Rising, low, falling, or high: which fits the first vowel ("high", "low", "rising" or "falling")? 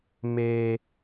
low